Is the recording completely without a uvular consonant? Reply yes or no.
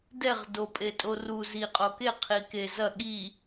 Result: no